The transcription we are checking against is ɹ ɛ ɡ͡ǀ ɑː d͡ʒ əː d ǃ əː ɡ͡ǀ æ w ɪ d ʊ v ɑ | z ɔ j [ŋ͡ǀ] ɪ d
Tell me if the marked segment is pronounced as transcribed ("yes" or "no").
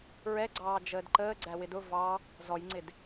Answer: yes